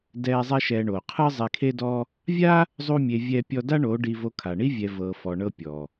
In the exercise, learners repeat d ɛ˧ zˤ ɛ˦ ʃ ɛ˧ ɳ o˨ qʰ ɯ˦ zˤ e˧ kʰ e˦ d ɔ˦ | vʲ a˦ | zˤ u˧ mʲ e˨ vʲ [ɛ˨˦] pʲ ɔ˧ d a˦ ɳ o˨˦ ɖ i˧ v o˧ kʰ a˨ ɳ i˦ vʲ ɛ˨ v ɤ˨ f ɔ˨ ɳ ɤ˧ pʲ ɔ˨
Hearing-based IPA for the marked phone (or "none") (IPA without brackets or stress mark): ɛ˧